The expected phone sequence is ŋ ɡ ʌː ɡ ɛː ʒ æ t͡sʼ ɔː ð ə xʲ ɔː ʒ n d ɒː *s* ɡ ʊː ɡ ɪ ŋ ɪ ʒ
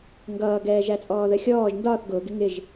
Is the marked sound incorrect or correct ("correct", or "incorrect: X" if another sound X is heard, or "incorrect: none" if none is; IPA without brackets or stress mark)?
incorrect: θ